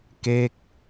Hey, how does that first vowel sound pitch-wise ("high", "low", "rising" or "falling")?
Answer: falling